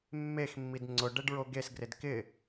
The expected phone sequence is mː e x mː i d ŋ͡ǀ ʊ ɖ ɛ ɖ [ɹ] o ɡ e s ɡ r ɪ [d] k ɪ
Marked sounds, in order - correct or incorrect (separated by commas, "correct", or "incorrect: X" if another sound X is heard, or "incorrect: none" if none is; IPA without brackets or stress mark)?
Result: correct, correct